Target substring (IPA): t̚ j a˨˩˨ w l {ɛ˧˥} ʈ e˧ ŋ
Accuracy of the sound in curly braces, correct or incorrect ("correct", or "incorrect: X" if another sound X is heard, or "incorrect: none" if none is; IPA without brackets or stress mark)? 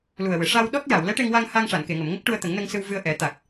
correct